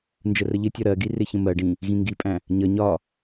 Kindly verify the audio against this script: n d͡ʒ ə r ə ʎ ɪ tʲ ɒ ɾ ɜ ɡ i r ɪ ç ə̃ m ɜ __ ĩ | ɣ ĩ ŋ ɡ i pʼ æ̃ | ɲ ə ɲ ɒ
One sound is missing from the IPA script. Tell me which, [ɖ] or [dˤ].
ɖ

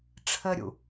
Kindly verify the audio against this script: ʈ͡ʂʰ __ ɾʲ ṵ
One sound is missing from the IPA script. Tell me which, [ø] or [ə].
ə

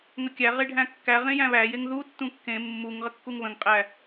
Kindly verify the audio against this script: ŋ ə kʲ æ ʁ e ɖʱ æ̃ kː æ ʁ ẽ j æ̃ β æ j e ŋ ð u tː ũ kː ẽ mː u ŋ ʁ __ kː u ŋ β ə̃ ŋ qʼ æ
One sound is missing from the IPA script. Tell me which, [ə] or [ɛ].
ə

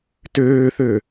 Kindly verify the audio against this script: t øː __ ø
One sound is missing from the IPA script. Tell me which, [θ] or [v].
θ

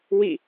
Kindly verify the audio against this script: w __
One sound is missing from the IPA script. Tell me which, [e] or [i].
i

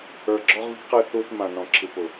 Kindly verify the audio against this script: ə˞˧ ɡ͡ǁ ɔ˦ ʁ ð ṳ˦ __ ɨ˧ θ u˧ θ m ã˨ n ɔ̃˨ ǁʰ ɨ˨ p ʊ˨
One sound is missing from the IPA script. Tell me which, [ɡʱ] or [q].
q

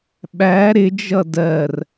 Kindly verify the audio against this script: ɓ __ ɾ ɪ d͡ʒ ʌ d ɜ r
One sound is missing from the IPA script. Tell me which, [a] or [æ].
æ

